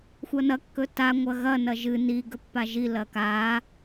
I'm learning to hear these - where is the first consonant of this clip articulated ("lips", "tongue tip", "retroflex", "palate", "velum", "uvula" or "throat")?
velum